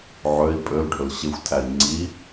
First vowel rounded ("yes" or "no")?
yes